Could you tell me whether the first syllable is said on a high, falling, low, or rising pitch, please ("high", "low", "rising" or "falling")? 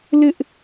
high